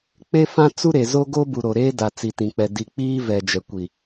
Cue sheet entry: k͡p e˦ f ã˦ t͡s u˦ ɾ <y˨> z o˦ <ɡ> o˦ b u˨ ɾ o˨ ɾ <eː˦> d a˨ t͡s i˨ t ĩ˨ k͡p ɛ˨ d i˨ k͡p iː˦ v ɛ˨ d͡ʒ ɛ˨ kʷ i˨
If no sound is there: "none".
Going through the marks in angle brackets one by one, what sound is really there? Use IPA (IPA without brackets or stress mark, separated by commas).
e˨, ɡ, eː˦